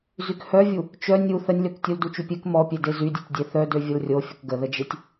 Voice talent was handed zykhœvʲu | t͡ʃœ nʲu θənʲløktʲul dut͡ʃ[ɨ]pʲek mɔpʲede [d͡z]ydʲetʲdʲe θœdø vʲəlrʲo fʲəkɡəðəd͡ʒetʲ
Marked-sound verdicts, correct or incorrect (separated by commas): incorrect, incorrect